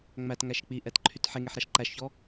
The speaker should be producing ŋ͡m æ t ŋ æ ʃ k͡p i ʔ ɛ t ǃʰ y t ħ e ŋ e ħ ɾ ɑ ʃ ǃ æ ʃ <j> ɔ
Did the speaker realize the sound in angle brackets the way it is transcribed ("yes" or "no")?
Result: no